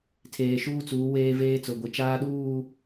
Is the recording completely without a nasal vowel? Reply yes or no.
yes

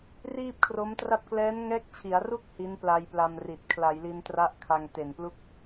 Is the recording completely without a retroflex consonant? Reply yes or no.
yes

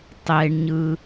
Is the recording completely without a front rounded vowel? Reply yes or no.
yes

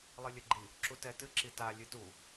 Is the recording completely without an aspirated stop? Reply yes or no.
yes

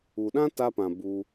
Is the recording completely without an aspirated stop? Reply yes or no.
yes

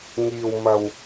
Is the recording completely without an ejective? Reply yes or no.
yes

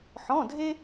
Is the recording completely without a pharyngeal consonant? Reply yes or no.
no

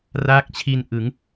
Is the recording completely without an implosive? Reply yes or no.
yes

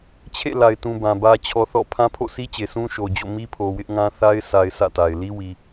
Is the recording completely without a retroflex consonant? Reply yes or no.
yes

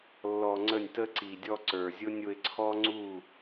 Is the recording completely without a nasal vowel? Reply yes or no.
yes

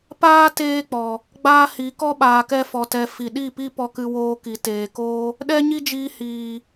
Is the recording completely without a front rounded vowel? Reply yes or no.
yes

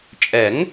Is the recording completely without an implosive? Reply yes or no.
yes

